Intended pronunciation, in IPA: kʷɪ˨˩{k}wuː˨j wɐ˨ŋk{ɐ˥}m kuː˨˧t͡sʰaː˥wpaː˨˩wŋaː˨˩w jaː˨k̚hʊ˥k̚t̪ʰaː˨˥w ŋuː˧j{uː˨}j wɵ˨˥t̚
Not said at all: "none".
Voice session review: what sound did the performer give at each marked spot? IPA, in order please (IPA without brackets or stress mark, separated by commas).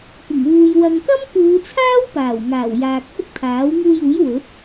ŋ, ɐ˥, uː˨˥